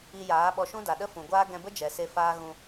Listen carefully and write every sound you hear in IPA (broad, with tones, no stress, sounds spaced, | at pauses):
i˧ j aː˨˦ ɓ ɔ˧ ʃ ũ˦ d a˨ ɗ ə˦ f ũ˨ ɡʷ aː˦ ɡ ɛ̃˧ b ə˦ d͡ʒ ɛ˨ s e˧ f aː˦ ɣ ũ˧